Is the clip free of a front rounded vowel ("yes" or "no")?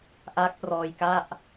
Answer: yes